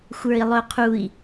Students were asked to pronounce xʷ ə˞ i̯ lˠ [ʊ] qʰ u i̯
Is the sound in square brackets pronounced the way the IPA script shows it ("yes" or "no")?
yes